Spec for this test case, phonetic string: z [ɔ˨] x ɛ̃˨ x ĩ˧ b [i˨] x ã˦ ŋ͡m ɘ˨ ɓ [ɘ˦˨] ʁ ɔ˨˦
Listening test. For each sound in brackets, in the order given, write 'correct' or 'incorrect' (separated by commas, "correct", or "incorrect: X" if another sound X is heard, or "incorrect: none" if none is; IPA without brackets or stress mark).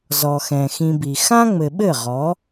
correct, correct, correct